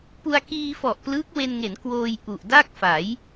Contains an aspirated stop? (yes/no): no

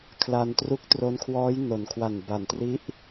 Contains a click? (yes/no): no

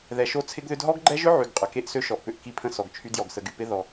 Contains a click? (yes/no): yes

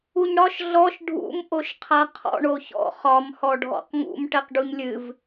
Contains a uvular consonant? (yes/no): yes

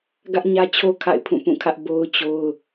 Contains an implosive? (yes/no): no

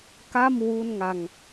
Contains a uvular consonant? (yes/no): no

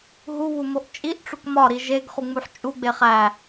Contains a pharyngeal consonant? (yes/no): yes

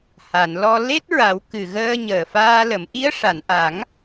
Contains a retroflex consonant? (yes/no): yes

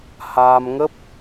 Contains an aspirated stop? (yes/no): no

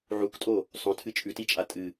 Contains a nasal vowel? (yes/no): yes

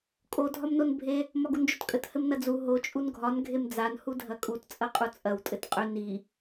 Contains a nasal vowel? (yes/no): no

